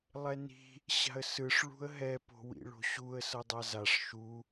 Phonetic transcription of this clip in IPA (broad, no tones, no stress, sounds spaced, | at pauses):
lˠ ɛ n i̤ | ɕ a̤ ə̯ s ɯ ʂ ɭ ṳ ə̯ ɦ ɛ p o̤ w ḭ ɭ o̤ ɕ u ə̯ s ʌ dˤ a z a ʂ ʃ u